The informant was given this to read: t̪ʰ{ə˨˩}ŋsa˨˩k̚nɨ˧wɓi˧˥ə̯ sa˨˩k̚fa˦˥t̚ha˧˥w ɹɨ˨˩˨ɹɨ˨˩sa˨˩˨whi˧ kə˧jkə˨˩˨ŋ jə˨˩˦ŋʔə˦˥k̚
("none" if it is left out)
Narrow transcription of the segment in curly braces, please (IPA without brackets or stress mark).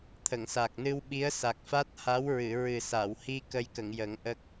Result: ə˨˩˨